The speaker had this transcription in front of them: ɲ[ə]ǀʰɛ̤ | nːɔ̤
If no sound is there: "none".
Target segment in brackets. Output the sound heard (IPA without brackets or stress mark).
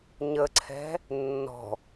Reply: ə